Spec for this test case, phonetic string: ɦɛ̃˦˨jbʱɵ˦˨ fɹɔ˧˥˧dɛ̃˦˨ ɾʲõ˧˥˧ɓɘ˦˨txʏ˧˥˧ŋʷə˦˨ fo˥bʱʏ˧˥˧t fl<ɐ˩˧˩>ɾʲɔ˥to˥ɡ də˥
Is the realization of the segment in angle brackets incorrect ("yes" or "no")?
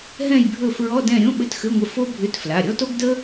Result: yes